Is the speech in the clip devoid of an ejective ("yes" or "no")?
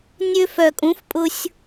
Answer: no